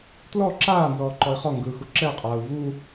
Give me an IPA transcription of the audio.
tlɔ ǁaː nzɔːǃɔi̯χɔŋɡɯː xuǁɛqʼaːu̯ vu

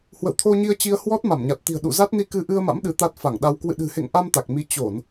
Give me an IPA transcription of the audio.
hwə̰˧˨wt̪ʰo˧ɲi˧ə̯t͡ɕi˧ə̯ hwɔ˦˥t̚ma˧˩mɲa˨˩t̚t̪i̤˨˩ə̯ ɗṵ˧˨za˦˥t̚ ni˧ kɨ˧ ʔɨ˧ə̯ma̰˧˥m ɗɨ˨˦t̪a˦˥t̚fa˧˩ŋɗa˧w kwɨ̰˧˨ɗɨ̤˨˩hḛ˧˨ŋʔa˧m t̪a˨˩k̚mi˨˦ t͡ɕo˧˩˨n

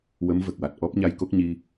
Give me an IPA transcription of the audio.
wə˧˥mvə˨˩k̚wa˨˩t̚ ʔɔ˦˥p̚ɲa˧jko˦˥k̚ɲi˧

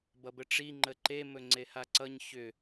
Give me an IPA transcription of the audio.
bʌbəʈ͡ʂi ŋ͡ǃəǃe mɵŋ͡ǀehaǀʌɲ çʏ

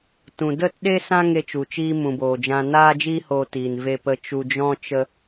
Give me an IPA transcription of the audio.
tũ˨də˦˨tɗe˦ sã˦ ŋe˦t͡ʃu˨t͡ʃiː˦ mũ˨boː˨d͡ʒã˧ naː˦d͡ʒiː˦hoː˧tiː˨n ve˧pə˧ t͡ʃu˨d͡ʒɔ̃˧ t͡ʃə˧

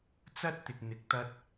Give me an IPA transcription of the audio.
t͡sɐ˥t̚t̪ɪ˨k̚n̪ɪ˨k̚ t̪ɐ˧t̚

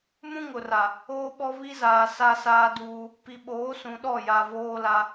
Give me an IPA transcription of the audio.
mũ˦ŋʊ˨ra˨ | oː˦ɓɔ˦ βi˦zaː˨ sa˦saː˦duː˦ | pi˨ɓoː˨˦sũ˨ɗɔ˦˨ ja˨voː˦la˦

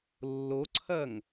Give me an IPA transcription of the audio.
lːoǀʰɐŋ

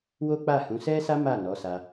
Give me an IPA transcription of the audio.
wo˦k͡pa˦˨hũ˨˦ sɛ˦sa˦ ma˦˨nɔ˨˦sa˧

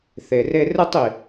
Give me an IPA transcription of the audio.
θe˨re˧ rɯ˧tˤi˨

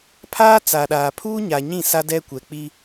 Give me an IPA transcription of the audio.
pʰaː˦t͡sa˨ɗaː˨ pʰuː˦ɲa˨ ɲĩ˦˨sa˦dɛ˦ kʷɛ˨k͡pi˦

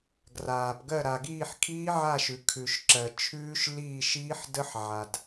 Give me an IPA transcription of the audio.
ɡraː˩pɡɜ˦˨ ɾa˩ɡiː˦˨ħ kʰiː˦˥ʕa˦˨ʃʉ˩ kʰʉ˩ʃ ǁɜ˩t͡ʃʰʉː˦˥ʃ liː˦˨ʃiː˦˥ħ də˦˥ħʕa˩d

